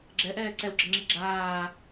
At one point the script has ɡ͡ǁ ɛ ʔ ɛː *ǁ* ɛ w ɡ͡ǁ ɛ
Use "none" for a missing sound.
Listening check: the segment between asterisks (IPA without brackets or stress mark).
ǀ